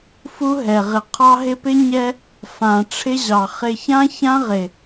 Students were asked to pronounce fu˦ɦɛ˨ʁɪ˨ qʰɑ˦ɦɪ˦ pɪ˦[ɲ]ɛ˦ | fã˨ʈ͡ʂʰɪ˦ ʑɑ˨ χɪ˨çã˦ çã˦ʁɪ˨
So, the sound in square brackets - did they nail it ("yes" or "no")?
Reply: yes